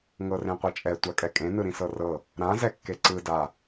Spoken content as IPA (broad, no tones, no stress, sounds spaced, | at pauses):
ŋ ɤ r ẽ qʷ ɤ t͡ʃʼ ɛ tʷ a kʼ ɛ kʼ ẽ n ɯ ɾ ĩ s ɤ r ɤ | ɾ ã z ɛ kː e ǀ ɯ d a